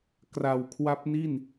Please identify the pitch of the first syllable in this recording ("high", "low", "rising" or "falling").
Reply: low